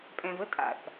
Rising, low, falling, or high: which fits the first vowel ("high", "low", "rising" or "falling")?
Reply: low